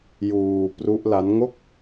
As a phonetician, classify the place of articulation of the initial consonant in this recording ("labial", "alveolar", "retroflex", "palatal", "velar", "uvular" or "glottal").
palatal